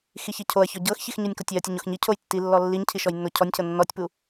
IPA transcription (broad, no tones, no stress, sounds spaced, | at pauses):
x i ç i cʰ o ɐ̯ ç ɔ ɟ ɤ x ç i x ɲ u nʲ k o tʲ i ɐ̯ tʲ ɯ ɲ o x ɲ i cʰ o j tː i lː ɔ lː i ɲ cʰ i ʃ ɔ j nː o cʰ ɔ nʲ cʰ ɤ nː ɔ tʲ p u